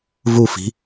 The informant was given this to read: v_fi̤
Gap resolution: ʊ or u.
u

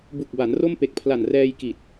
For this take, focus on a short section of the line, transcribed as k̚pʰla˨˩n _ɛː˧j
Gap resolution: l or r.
r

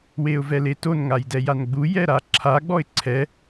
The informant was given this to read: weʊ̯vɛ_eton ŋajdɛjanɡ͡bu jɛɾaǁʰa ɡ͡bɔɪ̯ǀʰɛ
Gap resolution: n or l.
l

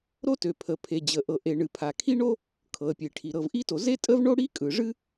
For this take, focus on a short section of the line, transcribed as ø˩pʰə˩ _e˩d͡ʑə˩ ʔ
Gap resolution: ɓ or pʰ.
pʰ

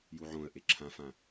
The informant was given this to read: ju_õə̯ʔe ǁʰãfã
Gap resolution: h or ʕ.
ʕ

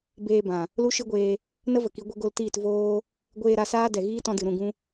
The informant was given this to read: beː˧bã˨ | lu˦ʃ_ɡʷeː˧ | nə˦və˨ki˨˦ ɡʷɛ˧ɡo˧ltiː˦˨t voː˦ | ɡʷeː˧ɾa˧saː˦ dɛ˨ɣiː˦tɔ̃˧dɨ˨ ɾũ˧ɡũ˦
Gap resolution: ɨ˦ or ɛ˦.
ɨ˦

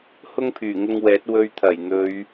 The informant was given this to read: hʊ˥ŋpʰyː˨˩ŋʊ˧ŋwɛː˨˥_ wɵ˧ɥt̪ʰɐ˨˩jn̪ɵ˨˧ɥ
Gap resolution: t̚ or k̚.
t̚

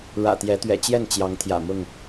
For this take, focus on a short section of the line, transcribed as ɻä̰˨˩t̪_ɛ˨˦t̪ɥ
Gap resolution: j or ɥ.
j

